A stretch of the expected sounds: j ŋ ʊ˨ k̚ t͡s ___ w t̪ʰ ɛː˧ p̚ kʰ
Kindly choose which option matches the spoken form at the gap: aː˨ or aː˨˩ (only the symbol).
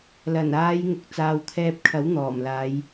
aː˨